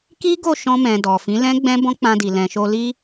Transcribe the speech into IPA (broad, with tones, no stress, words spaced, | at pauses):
ki˦ɡo˦˨ʃɔ̃˧mɛ̃˨ dɔ˨fĩ˨˦lɛ̃˦ ɡ͡bɛ̃˦bɔ̃˦k͡pã˧di˨ lɛ̃˨ʃo˧li˦